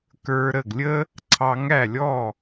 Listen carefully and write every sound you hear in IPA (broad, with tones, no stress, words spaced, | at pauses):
kə˞˧ɾə˥˩ɡlʲə˥ | ǀʰɑ˧ŋæ˥˩lʲɔ˥˩